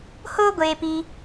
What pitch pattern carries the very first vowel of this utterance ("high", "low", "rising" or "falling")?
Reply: high